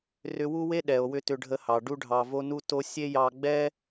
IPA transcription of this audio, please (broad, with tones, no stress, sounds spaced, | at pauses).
r ʏ˧ w u˦ w e˦ ɗ ɛ˨ o̯ w ʏ˧ t ʏ˧ ɖʱ ə˧ h ɑ˨ ɖ u˧ ɖʱ ɑ˨ v o˧ n u˧ t o˧ sʲ e˦ j ɑ˧ ɡ͡b ɛ˦